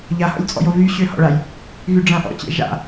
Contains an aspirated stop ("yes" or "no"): no